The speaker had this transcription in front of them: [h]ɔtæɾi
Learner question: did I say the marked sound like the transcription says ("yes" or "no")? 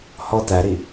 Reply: yes